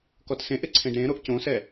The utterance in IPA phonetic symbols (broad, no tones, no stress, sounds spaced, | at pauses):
k ɔ t s ẽ ʔ ɪ ǀʰ ẽ ɖ ɾ ẽ ɾ o ʔ c õ s ɛ